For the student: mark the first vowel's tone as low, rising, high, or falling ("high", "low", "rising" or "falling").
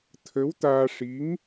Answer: rising